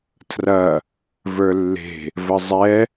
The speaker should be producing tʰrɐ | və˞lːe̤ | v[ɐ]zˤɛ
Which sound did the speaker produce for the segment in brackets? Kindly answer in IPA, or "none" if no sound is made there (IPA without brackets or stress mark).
ə